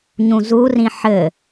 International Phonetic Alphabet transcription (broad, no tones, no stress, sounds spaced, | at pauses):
ɲ ũ z u r ĩ ħ ɘ